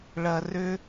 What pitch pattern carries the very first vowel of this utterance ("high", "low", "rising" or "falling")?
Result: low